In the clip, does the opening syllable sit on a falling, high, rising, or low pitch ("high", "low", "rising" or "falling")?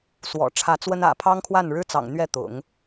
low